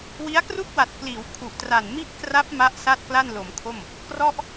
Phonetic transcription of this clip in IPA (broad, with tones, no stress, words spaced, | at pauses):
wi˦˥a̯kru˥˩k̚wa˨˩t̚ kliː˩˦wkʰu˨˩ʔtra˨˩n mi˥˩ʔkra˦˥p̚ ma˦˥ʔ sa˥˩t̚kla˥˩nlo˩˦mkʰo˥˩m | krɔ˥˩ʔ